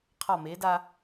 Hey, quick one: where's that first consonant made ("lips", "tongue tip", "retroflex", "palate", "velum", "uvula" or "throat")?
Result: uvula